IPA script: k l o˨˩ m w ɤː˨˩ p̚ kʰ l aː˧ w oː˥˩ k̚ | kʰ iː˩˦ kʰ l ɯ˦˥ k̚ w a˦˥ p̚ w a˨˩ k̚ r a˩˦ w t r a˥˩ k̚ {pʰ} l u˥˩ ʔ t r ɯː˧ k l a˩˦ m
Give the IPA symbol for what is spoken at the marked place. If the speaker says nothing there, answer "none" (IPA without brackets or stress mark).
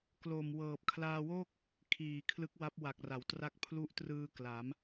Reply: pʰ